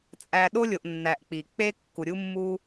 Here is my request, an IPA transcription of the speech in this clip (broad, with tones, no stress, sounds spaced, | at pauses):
t͡sʼ æ˨ ɗ o˥ lʲ o˨ ʔ nː æ˨ ʔ k͡p i˩ k͡p e˥ kː u˨ ɾʲ u˥ mː u˥